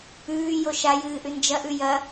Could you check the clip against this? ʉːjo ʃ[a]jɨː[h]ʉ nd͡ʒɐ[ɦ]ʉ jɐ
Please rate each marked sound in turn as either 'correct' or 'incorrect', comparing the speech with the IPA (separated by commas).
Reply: correct, incorrect, incorrect